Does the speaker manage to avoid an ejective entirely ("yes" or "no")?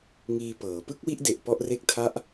yes